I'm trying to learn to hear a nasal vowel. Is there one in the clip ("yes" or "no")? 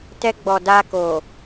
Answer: no